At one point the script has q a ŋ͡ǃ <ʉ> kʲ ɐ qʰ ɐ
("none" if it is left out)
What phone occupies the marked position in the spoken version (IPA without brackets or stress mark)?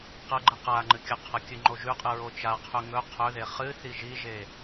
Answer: ɨ